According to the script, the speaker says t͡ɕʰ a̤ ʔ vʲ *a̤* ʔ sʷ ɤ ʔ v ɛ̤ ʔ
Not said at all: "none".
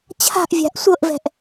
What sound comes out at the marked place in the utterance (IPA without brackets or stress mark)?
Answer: a̤